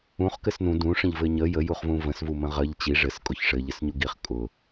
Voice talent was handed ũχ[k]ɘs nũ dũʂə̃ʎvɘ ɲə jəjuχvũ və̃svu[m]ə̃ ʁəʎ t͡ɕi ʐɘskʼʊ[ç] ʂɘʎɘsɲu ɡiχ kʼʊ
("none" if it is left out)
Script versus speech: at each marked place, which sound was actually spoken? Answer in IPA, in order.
k, m, ç

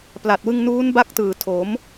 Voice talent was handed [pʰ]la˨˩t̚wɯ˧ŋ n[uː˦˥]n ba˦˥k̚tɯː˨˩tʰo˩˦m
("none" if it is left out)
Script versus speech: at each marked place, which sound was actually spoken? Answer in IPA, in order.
p, uː˦˥

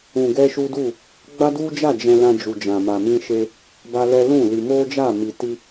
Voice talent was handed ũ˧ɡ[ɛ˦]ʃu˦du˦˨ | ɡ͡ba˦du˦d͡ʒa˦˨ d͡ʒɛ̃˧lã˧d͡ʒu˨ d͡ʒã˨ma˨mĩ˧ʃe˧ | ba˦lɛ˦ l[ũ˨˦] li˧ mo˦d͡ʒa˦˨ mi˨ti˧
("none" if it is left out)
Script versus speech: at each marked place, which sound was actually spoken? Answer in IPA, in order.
ɛ˦, ũ˦˨

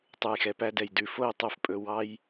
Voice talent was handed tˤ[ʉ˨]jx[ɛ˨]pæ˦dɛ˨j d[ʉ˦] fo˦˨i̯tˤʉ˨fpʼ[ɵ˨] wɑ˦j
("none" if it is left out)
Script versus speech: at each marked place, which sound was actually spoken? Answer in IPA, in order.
ʉ˨, ɛ˨, ʉ˨, ɵ˨

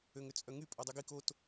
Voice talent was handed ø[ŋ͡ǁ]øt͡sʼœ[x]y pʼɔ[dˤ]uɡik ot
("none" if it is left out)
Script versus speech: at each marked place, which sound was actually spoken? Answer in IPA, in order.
ŋ, ŋ, dˤ

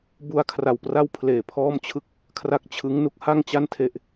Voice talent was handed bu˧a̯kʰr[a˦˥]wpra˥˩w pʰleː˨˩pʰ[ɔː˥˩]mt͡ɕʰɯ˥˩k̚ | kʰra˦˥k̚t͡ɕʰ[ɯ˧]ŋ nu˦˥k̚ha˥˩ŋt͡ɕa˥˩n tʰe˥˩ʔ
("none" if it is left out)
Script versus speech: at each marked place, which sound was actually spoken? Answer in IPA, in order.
a˨˩, ɔː˥˩, ɯ˦˥

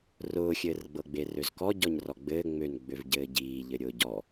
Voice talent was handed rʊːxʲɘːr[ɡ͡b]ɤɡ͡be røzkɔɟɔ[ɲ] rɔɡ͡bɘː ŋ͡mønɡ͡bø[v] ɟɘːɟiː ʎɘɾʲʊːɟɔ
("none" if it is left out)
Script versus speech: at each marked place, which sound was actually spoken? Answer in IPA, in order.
ɡ͡b, ɲ, v

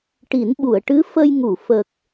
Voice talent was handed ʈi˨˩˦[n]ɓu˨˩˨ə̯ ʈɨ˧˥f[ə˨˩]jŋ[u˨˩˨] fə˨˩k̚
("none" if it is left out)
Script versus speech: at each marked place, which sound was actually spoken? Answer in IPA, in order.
n, ə˧, u˨˩˨

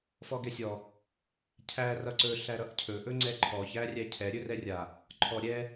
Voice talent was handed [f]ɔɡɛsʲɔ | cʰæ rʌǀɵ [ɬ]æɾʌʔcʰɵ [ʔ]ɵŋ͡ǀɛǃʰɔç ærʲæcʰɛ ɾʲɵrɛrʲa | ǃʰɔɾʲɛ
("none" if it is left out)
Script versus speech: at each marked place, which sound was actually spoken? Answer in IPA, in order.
f, ɬ, ʔ

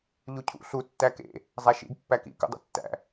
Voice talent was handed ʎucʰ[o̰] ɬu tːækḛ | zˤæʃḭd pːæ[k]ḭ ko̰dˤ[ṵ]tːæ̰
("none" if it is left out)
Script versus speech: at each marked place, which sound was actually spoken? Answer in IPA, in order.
ṵ, k, ṵ

